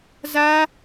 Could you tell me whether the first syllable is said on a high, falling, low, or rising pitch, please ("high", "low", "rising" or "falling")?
high